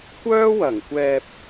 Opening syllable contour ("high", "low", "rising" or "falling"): high